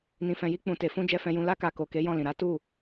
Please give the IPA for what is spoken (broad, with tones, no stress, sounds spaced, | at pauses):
n ĩ˨ f ɛ̃˨ j i˧ k͡p ũ˨ t e˨ f ũ˧ d͡ʒ ɛ˧ f ɛ̃˧ j ũ˧ l a˦ k a˧ k o˨ k e˨˦ j ɔ̃˦˨ l ĩ˨ ɾ a˨˦ t u˦˨